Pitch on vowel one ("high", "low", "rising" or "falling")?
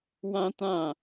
high